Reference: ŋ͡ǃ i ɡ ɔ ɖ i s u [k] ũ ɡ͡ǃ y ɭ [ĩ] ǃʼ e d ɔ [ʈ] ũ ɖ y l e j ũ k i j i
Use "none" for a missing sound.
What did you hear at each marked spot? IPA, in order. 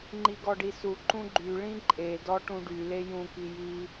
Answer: ǃ, ĩ, ʈ

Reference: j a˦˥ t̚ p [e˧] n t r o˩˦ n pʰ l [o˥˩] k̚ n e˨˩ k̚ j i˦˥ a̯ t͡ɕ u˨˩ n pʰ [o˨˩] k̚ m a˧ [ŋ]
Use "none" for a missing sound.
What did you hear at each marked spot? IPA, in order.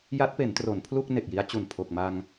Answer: e˩˦, u˥˩, o˨˩, ŋ

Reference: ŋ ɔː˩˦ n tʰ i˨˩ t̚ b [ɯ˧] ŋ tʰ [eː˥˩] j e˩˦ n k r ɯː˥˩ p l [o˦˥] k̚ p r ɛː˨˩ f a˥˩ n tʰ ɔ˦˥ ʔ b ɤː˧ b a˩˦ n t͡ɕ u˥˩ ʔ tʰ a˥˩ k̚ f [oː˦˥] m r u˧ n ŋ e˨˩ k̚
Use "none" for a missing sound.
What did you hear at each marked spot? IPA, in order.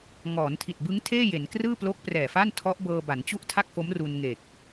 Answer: ɯ˦˥, eː˥˩, o˦˥, o˦˥

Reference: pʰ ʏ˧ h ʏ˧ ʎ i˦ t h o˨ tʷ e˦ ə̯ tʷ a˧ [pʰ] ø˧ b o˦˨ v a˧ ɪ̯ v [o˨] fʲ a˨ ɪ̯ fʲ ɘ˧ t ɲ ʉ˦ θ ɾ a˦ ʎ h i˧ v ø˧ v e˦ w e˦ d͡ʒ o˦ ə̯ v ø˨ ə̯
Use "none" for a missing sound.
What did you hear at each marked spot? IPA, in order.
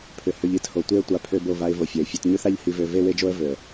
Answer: pʰ, o˨

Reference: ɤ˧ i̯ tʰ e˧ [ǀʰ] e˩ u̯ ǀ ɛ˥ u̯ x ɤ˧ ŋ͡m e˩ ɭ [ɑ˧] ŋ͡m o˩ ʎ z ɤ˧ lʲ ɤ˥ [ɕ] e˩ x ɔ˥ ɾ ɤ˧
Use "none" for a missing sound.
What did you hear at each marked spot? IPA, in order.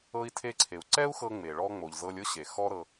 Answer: ǀʰ, ɔ˧, ɕ

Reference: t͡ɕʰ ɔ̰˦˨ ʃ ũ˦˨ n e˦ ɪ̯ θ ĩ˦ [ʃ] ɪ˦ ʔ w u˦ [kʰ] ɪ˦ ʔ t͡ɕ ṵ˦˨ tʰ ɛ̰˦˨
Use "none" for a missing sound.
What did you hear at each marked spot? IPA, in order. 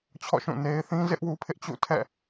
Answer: z, pʰ

